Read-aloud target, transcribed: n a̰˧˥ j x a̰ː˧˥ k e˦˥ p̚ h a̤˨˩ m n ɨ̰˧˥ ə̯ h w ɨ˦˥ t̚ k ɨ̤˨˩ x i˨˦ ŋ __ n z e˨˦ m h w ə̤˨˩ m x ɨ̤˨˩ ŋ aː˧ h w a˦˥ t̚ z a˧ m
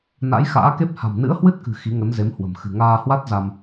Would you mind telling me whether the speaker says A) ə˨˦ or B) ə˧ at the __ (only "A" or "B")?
A